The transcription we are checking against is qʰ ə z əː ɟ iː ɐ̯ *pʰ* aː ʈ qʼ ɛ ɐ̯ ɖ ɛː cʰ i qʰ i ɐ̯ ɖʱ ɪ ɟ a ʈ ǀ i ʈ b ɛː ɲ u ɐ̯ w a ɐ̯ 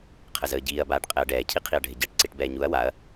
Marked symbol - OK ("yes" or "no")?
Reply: no